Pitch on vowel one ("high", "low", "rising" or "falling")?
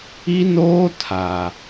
high